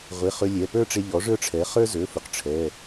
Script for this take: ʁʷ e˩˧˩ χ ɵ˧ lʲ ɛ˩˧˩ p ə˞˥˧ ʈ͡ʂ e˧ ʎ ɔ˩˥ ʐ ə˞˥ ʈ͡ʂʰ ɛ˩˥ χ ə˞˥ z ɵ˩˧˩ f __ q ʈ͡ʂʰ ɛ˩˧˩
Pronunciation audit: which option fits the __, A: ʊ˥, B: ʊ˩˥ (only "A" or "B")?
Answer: B